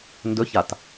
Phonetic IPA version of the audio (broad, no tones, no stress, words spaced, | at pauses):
ndɵçat